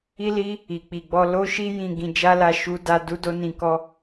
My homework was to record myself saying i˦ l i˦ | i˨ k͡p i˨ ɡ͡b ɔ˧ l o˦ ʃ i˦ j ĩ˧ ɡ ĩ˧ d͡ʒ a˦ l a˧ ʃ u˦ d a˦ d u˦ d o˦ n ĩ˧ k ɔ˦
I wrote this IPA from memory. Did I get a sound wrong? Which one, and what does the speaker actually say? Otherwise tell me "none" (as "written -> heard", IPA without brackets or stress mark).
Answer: none